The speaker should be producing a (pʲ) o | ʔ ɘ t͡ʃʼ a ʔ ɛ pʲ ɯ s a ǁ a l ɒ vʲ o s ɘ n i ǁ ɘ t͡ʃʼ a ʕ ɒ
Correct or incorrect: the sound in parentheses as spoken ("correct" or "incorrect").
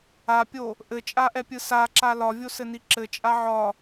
correct